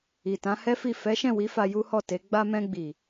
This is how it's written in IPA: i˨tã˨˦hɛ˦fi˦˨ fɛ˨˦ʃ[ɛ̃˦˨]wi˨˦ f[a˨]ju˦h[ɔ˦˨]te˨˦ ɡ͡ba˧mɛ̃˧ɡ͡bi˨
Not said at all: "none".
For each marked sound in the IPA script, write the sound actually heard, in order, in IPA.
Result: ɛ̃˦˨, a˧, ɔ˦˨

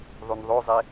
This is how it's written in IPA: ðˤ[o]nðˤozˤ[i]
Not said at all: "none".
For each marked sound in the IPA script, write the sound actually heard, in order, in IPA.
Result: u, e

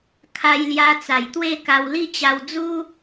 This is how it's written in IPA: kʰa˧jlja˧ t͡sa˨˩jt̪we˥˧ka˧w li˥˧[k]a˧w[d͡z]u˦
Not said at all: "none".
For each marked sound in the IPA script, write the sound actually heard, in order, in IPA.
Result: t͡ɕ, d͡z

